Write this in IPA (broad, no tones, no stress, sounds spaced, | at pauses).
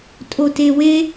tʼ o t e w e